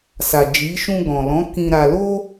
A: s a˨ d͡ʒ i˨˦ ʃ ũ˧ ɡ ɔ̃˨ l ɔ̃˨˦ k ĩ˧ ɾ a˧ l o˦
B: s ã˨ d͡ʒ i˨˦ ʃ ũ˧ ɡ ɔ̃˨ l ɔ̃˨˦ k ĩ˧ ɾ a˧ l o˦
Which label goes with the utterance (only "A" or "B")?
A